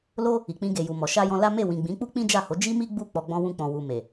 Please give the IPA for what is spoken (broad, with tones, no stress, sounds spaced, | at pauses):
l o˦ | i˨ k͡p ĩ˧ ɡ e˨ j u˨ m ɔ˨ ʃ a˧ j ɔ̃˧ l a˦ m e˦˨ w ĩ˨ ɡ͡b ĩ˨˦ k͡p u˦ k͡p ĩ˦ d͡ʒ a˦˨ h o˨˦ d͡ʒ i˦ m i˦ ɡ͡b u˦˨ k͡p ɔ˧ ɡ͡b ɔ̃˦ w ũ˦ k͡p ɔ̃˧ w u˨ m e˨